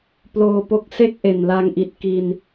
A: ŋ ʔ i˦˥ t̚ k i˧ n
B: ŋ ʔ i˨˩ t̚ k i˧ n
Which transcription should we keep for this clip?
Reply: B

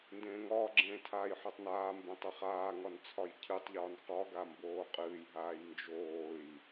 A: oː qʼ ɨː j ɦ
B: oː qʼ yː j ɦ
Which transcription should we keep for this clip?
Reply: A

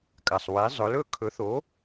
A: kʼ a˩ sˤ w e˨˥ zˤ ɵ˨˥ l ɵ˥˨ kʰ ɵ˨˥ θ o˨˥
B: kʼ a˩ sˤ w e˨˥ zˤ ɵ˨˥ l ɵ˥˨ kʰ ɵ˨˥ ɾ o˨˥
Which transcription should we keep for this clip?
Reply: A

